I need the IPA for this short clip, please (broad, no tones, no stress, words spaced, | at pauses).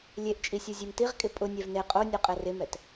lʲeʔt͡ʃʼisʲu zʲemtiʁkʼɪ pʼʊnʲɛv ne qʼonʲoqʼɛ rɪmɛt